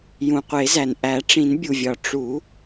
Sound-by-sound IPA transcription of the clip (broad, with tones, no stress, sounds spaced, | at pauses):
j ũ˩ qʷ e˨˩˦ z æ˩ n ʔ æ˨˩˦ ʈ͡ʂ ĩ˨˩˦ n bʲ u˩ vʲ ɒ˩ ʈ͡ʂ u˨˩˦